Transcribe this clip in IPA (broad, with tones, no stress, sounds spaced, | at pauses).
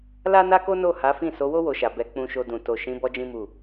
l a˦ n a˦ k o˦ n o˦˨ h a˨˦ f ĩ˦˨ s o˨˦ w o˦ w o˧ ʃ a˨ b ɛ˨˦ k͡p ũ˧ ʃ o˧ d ũ˨ t o˨ ʃ ĩ˨˦ b ɔ˦ d͡ʒ ĩ˦ m u˦˨